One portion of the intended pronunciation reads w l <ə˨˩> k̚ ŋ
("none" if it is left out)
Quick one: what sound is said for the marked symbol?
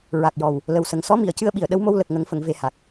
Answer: ə˨˩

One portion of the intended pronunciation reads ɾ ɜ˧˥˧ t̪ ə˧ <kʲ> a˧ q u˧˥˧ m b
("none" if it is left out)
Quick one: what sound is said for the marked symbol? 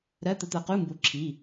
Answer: t̪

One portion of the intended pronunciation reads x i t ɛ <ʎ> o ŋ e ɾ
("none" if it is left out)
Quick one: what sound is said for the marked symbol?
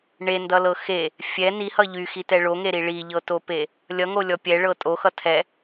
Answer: ɭ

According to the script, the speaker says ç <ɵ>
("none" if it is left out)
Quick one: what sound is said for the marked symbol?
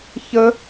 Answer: ə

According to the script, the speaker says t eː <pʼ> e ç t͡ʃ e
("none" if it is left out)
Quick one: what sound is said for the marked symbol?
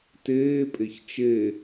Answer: pʼ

